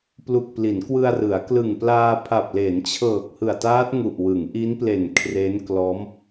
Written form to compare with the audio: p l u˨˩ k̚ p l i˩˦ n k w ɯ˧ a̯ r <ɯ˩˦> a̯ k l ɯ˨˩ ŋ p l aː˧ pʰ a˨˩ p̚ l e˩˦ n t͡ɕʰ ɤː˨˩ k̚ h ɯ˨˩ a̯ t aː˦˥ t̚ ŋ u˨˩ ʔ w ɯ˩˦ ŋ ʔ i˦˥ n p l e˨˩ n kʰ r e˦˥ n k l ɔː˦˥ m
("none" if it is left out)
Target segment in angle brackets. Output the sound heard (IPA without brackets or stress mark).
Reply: ɯ˩˦